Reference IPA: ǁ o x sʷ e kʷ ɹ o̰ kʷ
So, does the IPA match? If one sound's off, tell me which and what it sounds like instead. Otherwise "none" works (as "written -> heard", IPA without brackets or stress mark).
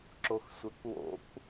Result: ɹ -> w